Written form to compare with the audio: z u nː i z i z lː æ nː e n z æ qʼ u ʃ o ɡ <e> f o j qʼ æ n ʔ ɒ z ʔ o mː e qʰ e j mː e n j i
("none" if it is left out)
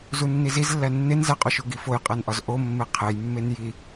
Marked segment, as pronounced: i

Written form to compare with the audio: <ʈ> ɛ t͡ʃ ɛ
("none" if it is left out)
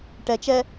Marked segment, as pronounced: ʈ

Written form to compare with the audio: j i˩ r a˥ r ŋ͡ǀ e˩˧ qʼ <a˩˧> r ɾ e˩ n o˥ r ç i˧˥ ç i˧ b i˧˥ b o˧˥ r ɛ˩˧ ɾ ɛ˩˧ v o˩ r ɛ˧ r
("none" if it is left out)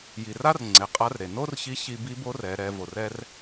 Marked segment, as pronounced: a˧˥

